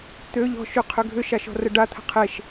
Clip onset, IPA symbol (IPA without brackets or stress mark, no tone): t̪